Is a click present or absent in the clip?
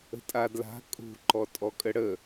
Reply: present